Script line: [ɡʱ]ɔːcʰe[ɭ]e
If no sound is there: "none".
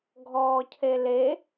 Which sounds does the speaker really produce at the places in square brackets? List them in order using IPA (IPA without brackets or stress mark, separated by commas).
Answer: ɡʱ, l